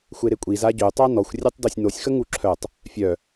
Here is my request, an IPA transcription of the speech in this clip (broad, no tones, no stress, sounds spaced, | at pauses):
xʷ e ɾ e kʷʼ i z a ɟ ø tˤ a n ɔ xʷ rʲ e tˤ d o sʲ n o sʲ x ə ŋ u ǁʰ œ tˤ | fʲ œ